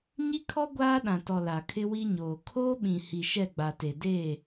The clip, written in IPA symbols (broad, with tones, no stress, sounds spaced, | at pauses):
ɲ i˦ kʰ ɔ˦ ɡʷ aː˦ ɗ ã˨ t ɔ˨ l a˨ kʰ ɪ˦ w i˦ ɲ oː˨ kʰ oː˦ ɓ ĩ˨ h i˨ ʃ ɛ˦˨ ɡ͡b a˨ t e˨ d eː˦˨